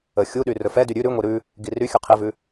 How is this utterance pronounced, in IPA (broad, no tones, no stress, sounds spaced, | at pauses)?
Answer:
ə xʲ u ɗ y r ɵ f ɛ d y ɾʲ ʉ ɾ ʉ ŋʷ i ɾ ʉ | ɡ i r y xʲ ʉ qʰ i v ʉ